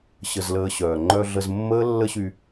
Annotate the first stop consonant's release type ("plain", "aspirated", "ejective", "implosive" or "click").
click